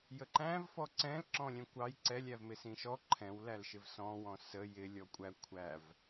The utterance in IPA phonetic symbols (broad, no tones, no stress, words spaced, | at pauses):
jəǃæ̃v fɔǀɛ̃l ǁɔ̃lʲɛ̃kʷɑj ǀɛlʲævmɪ sĩʃɔ ǃʰɛ̃wlælʃɪv sɔ̃wɔ̃ sə jɪ lʲɔkʷʼæ kʷʰæv